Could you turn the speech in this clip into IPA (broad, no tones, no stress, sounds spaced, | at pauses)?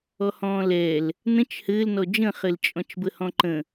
ɔ h ɔ̃ː l ɛː l | n ə̃ t͡ʃ h ɘː l n ɔ d͡ʒ ə̃ χ ɘ l t͡ʃʼ ɔ̃ t͡ʃ b ə h ɔ̃ ǃ ə̃